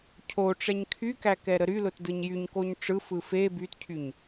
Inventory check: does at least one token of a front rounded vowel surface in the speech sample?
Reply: yes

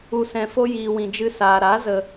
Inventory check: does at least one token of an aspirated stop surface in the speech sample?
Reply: no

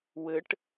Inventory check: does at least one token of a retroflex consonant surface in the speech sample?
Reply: yes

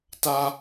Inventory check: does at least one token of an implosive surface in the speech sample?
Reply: no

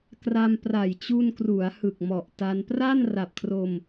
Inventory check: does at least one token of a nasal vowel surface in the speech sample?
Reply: no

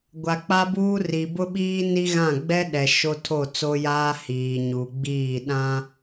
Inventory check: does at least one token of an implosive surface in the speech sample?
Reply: yes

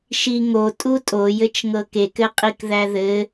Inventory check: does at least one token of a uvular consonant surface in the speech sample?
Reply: yes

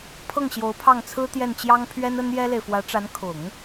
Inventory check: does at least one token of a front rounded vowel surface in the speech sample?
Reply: no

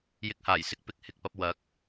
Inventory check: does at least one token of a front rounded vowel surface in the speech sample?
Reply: no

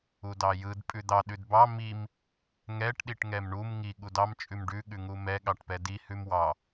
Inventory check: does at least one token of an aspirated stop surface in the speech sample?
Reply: no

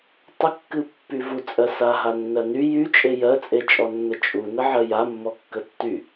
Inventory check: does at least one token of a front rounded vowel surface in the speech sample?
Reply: yes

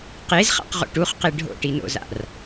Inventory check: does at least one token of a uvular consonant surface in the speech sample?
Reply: yes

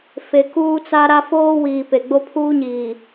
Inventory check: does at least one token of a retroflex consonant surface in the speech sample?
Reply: no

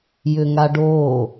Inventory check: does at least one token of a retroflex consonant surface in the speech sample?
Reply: yes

